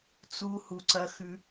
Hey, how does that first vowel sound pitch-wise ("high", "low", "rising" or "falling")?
high